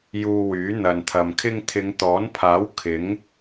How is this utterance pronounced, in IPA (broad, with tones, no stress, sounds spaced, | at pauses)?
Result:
j uː˧ w yː˨˥ n̪ ɐ˨ n t̪ʰ ɐ˨ m kʰ ɪ˥ ŋ t̪ʰ ɪ˨˧ ŋ t̪ ɔː˨˥ n pʰ aː˨˥ w kʰ ɪ˨˥ ŋ